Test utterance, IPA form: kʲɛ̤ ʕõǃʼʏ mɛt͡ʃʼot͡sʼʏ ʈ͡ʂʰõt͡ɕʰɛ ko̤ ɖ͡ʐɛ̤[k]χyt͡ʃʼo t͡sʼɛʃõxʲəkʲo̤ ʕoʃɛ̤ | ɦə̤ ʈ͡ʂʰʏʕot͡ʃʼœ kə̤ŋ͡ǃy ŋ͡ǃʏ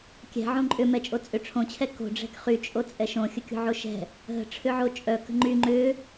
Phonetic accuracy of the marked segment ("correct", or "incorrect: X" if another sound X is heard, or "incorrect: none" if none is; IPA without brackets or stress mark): correct